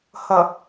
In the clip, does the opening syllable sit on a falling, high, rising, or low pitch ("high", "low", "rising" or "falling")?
low